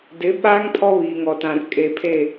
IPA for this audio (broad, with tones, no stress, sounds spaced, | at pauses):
d ɪ˨˦ ɓ aː˦ ŋ pʰ ɔ˦ β iː˨ ŋ ɔ˨ t ã˨ r kʼ e˨ pʰ e˦˨